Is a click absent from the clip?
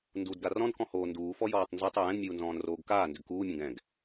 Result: yes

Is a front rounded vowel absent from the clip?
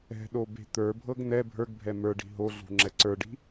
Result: yes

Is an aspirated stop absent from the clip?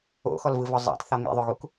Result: yes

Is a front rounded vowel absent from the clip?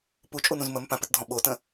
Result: yes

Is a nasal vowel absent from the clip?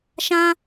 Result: no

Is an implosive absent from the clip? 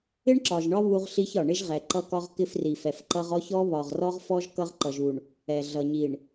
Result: yes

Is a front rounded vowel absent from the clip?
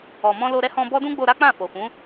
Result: yes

